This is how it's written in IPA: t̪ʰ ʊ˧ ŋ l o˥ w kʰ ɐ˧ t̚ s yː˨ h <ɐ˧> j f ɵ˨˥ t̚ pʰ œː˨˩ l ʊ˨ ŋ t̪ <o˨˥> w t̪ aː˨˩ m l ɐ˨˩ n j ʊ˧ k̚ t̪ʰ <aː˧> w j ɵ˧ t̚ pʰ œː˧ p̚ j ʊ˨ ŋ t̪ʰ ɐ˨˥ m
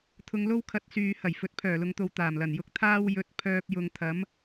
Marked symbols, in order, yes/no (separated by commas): no, no, no